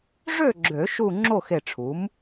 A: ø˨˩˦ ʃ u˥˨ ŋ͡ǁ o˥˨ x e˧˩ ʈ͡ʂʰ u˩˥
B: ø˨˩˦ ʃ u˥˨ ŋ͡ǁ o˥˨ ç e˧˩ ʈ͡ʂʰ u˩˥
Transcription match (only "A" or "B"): A